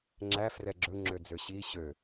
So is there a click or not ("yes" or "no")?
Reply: yes